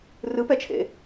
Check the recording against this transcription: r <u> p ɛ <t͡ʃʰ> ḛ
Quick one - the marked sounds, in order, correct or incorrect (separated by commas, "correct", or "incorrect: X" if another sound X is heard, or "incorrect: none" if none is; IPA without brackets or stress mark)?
incorrect: ɯ, correct